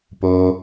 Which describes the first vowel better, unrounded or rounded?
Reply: rounded